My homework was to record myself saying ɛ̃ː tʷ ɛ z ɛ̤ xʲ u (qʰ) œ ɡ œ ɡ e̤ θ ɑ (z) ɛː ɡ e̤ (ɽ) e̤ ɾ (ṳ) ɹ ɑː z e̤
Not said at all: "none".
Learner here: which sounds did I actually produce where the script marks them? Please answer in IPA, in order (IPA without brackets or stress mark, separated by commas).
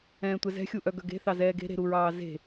ʔ, z, ɾ, u